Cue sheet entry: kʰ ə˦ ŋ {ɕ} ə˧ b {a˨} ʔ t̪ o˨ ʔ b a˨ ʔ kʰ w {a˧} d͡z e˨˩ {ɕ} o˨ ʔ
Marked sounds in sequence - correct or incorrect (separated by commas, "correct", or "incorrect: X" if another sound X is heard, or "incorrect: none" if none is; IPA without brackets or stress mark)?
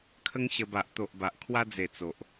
correct, correct, correct, incorrect: t͡s